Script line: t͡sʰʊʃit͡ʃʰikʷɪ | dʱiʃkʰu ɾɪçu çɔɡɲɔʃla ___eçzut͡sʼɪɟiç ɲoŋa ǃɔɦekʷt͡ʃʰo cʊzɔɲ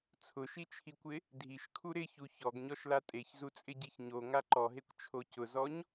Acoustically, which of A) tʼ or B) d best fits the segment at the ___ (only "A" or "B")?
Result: A